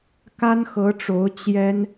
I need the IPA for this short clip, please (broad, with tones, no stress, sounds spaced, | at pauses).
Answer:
k a˥ n x ɤ˧˥ ʈ͡ʂ o˧˥ ʊ̯ t͡ɕ j ɛ˥ n